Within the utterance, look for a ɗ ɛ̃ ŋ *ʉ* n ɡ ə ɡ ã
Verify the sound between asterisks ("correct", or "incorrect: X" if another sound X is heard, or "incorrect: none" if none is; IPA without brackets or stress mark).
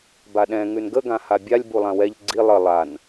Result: correct